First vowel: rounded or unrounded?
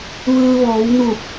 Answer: unrounded